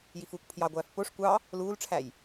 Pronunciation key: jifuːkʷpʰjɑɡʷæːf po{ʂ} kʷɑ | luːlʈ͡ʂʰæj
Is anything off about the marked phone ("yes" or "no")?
no